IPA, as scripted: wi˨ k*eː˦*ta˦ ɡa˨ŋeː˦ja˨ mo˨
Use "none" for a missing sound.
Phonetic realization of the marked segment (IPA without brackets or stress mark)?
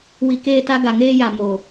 eː˦